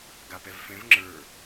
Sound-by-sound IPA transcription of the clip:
ɡ a p ɛ v f ɛ̃ v ŋ͡ǁ ə˞

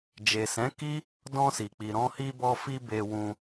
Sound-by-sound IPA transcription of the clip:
d͡ʒ e˨ s ɛ̃˨˦ k i˦ | d ɔ̃˧ s i˨ k͡p i˨ ɾ ɔ̃˧ h i˧ b ɔ˧ f i˧ b e˧ w ũ˧

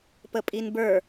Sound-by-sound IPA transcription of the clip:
p ə pʼ i n b ə˞

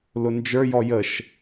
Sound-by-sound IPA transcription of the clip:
l ʊ n d͡ʒ ə˞ j ɔ j ə ʃ

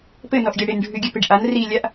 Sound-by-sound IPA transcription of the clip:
p ɘ n ɔ ʔ ɡʲ a ɽ ɪ n ɖʱ ʉ ɡʲ ʉ p ɪ ɖ ʔ a n r i lʲ a ʔ

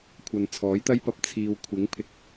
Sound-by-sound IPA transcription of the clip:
kʷʰ ɐ˨ n t͡sʰ ɔː˨˥ j t̪ ɐ˥ j p ɐ˧ p̚ t͡sʰ iː˨ w kʷʰ ɪ˨˥ ŋ pʰ ɪ˨ k̚

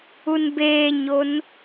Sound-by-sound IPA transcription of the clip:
u n b eː ɲ o n

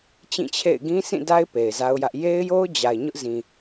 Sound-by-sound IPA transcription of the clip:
t͡ɕ ĩ˦˨ t͡ɕʰ ḛ˦˨ ɪ̯ ɡ ĩ˦ sʰ ĩ˦˨ d a˦ ɪ̯ p e˨ ɪ̯ z a˦ ʊ̯ j ä˦ ʔ j e˦ ɪ̯ j o˦ ʊ̯ d͡ʑ a˨ ɪ̯ ɲ ʊ˦ ʔ z ĩ˨

